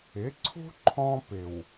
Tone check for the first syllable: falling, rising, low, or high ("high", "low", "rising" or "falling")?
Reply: rising